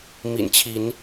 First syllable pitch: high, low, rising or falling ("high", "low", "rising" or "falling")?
low